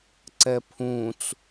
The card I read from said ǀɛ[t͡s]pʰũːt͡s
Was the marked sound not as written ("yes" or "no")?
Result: yes